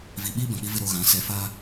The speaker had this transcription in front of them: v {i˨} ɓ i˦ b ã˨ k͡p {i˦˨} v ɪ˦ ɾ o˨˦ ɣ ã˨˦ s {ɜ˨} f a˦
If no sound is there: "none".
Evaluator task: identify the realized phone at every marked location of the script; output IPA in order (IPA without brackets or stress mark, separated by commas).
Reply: i˨, i˦, ɛ˨